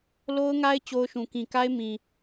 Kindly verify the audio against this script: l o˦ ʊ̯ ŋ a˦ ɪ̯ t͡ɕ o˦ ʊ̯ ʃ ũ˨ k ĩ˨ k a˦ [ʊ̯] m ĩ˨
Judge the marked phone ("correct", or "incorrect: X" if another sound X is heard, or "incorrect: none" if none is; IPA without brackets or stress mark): incorrect: ɪ̯